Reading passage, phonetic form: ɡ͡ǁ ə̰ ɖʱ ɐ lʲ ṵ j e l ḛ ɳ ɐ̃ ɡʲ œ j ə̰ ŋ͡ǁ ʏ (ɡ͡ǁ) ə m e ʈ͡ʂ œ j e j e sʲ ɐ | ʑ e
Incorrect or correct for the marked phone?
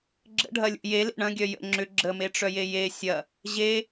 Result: correct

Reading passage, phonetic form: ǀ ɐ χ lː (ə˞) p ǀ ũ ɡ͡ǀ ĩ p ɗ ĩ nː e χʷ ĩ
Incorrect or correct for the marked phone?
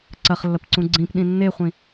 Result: incorrect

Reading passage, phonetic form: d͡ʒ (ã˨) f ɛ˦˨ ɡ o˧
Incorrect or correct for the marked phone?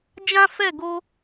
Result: incorrect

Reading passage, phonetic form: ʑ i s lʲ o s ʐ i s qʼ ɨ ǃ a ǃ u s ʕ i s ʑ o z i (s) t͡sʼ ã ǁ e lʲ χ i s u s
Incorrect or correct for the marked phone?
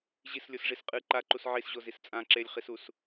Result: correct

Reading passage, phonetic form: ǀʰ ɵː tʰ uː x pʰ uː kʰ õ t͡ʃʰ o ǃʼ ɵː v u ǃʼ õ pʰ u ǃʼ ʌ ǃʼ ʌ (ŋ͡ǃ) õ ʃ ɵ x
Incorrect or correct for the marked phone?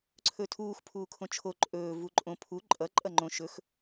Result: correct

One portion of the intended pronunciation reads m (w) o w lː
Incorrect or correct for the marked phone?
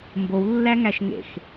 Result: incorrect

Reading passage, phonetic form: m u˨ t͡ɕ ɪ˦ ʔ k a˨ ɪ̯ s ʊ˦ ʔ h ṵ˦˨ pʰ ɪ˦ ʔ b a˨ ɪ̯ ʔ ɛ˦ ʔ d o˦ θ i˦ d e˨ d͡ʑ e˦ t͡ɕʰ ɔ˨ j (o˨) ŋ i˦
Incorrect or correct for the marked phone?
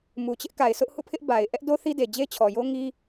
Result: incorrect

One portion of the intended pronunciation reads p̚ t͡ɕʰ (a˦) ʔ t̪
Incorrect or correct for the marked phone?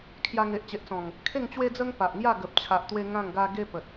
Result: incorrect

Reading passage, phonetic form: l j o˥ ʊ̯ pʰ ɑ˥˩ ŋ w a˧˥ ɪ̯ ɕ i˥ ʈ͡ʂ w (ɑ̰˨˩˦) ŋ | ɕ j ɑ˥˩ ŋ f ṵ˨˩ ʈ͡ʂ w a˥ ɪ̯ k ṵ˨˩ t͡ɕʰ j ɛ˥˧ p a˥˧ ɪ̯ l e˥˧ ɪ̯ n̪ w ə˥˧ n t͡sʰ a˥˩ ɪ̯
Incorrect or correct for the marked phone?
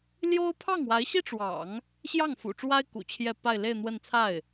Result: correct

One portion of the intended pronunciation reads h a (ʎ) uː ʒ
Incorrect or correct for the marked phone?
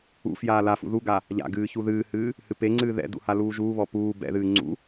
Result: incorrect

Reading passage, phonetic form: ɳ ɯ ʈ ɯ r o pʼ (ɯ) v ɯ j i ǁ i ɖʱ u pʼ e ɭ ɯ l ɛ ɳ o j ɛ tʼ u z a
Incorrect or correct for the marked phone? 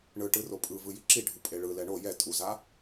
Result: correct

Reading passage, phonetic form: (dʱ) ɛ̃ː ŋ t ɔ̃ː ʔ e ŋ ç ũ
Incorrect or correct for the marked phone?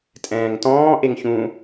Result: incorrect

